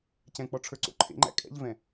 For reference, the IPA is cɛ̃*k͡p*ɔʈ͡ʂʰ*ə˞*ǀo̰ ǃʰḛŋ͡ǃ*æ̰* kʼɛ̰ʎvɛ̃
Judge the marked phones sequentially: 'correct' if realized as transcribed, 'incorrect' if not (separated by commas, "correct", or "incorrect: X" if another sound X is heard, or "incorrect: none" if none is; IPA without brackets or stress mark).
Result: correct, correct, correct